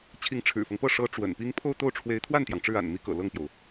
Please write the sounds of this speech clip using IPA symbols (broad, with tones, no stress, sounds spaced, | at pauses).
t͡ɕʰ i˧˥ ŋ ʈ͡ʂʰ ɻ̩˨˩ f ɤ˦ ŋ p ɤ˥˩ ʂ ɤ˧˥ ʈ͡ʂ w ə̰˨˩ n p i˥ ŋ pʰ o˥˧ ʊ̯ t̪ o˥˩ ʊ̯ ʈ͡ʂʰ w e˧˥ ɪ̯ t̪ʰ w a˥˩ n t̪ j ɑ˩ ŋ ʈ͡ʂ ɻ̩˥˩ a̰˨˩ n m i˧˥ k ɤ̰˨˩ l ɤ˥˩ ŋ p j o˩ ʊ̯